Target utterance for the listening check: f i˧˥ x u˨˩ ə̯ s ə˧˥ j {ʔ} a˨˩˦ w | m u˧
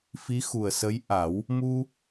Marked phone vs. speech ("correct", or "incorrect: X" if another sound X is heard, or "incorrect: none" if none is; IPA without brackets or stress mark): correct